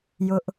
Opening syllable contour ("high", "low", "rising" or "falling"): high